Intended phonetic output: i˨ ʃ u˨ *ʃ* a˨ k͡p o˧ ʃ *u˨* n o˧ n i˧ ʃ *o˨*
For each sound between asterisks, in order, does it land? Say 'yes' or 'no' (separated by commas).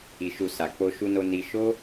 no, no, no